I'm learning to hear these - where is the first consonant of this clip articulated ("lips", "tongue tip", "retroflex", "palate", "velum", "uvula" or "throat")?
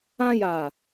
palate